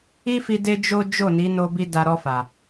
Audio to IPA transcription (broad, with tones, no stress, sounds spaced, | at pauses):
i˦ f i˧ d e˦ d͡ʒ o˦ d͡ʒ o˦˨ n i˨˦ n o˧ b i˧ d a˧ ɾ ɔ˧ f a˨